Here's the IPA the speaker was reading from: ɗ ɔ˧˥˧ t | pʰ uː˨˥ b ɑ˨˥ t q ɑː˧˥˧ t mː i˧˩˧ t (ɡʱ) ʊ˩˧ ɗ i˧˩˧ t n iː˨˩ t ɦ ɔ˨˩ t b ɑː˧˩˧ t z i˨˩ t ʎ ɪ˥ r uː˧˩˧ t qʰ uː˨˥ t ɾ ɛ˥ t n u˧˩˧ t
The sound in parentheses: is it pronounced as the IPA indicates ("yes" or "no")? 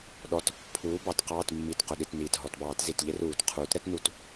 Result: no